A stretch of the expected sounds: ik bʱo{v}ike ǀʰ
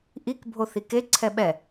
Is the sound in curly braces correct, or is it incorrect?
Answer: incorrect: θ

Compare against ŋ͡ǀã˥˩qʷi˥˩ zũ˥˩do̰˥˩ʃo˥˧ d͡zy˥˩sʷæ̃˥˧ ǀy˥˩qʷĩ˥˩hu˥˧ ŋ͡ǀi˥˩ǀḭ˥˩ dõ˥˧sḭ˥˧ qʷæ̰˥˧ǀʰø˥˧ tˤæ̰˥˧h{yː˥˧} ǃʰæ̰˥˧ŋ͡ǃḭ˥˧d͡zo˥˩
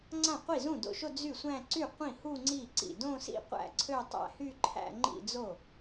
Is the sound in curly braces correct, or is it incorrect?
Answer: incorrect: y˥˧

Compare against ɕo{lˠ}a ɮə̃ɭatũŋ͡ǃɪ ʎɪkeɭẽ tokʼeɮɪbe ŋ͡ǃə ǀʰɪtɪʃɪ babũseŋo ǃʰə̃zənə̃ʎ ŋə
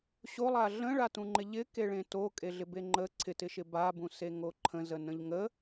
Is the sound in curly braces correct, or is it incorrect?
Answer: correct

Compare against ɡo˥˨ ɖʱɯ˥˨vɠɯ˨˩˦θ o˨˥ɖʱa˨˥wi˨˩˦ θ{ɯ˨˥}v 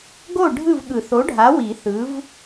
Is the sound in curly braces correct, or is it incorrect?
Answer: correct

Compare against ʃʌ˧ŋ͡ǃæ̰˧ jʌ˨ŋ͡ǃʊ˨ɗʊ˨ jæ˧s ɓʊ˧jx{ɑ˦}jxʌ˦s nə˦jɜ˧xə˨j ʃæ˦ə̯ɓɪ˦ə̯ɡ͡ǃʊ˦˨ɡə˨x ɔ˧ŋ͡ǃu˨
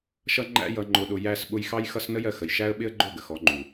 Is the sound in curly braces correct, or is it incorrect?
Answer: correct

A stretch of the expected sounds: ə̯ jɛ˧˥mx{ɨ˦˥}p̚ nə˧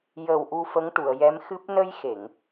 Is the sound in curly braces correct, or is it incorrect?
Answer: correct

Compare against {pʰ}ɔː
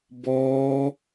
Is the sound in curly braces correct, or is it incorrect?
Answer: incorrect: b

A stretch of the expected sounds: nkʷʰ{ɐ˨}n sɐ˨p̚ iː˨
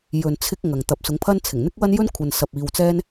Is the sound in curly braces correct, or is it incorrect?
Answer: correct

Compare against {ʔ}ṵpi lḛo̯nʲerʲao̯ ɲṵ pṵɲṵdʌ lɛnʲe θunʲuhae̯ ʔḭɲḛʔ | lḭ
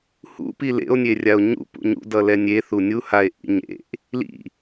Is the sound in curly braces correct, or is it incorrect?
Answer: incorrect: h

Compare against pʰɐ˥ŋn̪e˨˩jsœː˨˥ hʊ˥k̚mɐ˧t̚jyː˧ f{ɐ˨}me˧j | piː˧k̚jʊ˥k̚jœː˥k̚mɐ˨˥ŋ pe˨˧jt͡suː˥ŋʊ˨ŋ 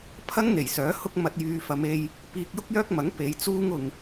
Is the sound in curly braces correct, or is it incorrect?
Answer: incorrect: ɐ˨˧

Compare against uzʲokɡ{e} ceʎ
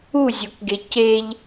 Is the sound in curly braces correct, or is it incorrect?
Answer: correct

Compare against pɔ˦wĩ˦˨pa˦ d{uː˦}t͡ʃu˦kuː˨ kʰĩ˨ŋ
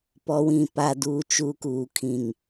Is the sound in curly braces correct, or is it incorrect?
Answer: correct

